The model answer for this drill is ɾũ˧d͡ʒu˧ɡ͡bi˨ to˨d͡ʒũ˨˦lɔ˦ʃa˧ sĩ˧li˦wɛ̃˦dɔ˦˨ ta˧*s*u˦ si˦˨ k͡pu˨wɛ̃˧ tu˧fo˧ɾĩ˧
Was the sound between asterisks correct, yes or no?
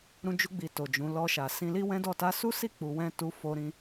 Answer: yes